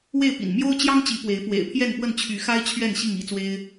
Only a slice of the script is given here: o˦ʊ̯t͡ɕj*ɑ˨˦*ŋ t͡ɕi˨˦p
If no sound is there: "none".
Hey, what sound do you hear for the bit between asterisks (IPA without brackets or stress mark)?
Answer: ɑ˦